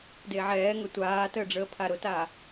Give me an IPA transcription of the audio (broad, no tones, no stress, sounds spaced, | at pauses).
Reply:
d e ʕ ɛː ŋ œ tʷ aː t əː ɖ͡ʐ əː pʰ a ɾ ʊ t a